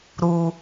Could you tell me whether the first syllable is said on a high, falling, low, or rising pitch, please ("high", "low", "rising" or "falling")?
low